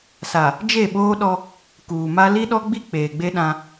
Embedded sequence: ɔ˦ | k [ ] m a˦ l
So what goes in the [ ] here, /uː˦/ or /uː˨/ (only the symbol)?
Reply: uː˨